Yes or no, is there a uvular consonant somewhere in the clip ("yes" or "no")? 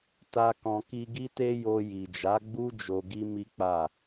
no